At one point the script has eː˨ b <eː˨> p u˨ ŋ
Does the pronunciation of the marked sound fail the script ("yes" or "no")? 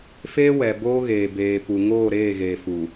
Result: no